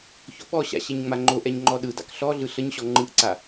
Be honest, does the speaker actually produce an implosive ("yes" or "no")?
yes